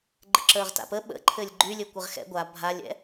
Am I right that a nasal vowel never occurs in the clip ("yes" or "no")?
yes